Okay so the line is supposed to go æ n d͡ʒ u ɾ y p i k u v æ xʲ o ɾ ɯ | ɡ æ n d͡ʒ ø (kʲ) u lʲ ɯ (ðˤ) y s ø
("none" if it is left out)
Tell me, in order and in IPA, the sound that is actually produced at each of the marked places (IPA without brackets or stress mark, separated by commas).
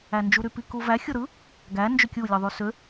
kʲ, ðˤ